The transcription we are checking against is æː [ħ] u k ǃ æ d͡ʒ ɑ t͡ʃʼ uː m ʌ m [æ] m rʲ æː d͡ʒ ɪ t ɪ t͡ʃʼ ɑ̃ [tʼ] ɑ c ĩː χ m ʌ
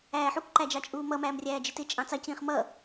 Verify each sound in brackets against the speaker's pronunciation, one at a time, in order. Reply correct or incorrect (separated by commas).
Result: correct, incorrect, incorrect